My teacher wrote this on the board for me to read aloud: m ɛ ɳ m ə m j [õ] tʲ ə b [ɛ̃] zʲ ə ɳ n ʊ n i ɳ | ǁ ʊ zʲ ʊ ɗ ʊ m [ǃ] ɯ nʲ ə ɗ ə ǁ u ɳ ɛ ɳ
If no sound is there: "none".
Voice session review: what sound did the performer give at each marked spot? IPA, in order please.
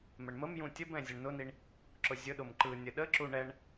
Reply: ũ, ɛ̃, ǃ

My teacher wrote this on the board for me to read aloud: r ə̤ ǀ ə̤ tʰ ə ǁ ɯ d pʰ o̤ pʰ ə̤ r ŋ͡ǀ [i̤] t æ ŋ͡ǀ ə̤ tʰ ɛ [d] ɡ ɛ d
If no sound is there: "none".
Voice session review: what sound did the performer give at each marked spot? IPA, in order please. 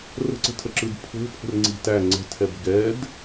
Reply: i̤, b

